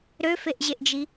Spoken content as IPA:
ɾ ø f e ʔ ʑ e ʔ d͡ʒ i

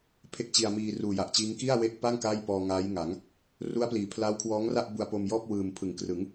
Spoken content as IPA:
pʰ e˥˩ k̚ t͡ɕ i˧ a̯ m iː˧ r uː˨˩ j a˨˩ ʔ t͡ɕ iː˦˥ ŋ k i˥˩ a̯ w e˦˥ ʔ p a˥˩ ŋ k aː˥˩ j p ɔː˧ ŋ aː˦˥ j ŋ a˩˦ ŋ | r u˦˥ a̯ p l iː˩˦ pʰ l a˦˥ w kʰ w ɔː˦˥ ŋ r a˥˩ ʔ b u˧ a̯ p o˧ m j ɔː˥˩ p̚ w ɯː˨˩ m pʰ ɯ˩˦ ŋ k r ɯ˩˦ ŋ

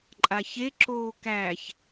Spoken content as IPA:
ǃʼ a ç e ǁ oː k æ ç

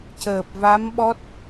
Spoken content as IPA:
c əː˨˩ p̚ v a˧˥ m ɓ ɔ˦˥ t̚

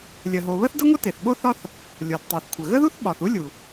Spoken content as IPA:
lʲ ə˩ ɦ o˩ β ə˥ θ d ə˥ ŋʷ ə˥ t e˩ θ ɓ o˥ θ ɒ˥ θ | lʲ o˩ d tˤ u˩ θ kʷʰ ə˩ ɣ ə˥ ð u˥ θ ɓ ɒ˩ θ u˥ lʲ u˩

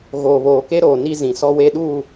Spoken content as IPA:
ɣ oː˨ β oː˨ k e˦ ɾ oː˨ n i˦ z ĩ˨ s ɔ˦ w e˦ ɗ u˦˨

